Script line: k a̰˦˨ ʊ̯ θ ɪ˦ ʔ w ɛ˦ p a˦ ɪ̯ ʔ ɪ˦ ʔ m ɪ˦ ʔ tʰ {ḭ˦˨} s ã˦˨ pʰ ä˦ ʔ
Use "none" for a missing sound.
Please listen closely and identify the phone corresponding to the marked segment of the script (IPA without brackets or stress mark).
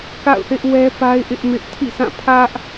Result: ḭ˦˨